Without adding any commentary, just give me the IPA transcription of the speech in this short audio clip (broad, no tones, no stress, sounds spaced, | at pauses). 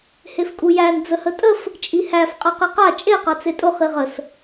h e f kʼ u j æ n d͡z ə h ə tʼ ə f | t͡ʃʼ i h æ f qʼ a q e q a t͡ʃʼ e q a t͡s e tʼ ʊ χ i ʁ ə s